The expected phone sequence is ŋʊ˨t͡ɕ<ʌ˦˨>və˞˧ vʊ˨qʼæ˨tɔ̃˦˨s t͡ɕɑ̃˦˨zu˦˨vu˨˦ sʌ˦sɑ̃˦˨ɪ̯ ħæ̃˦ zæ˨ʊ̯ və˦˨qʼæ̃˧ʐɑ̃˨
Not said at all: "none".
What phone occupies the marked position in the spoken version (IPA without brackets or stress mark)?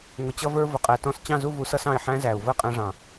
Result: ʌ˧